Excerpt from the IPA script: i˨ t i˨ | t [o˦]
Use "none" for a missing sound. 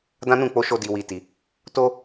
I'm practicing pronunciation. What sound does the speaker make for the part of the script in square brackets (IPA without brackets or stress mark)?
o˦